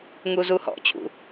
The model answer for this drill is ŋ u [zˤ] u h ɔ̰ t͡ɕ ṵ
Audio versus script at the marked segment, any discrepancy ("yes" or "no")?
yes